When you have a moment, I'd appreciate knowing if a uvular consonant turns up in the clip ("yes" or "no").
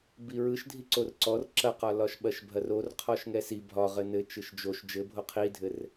yes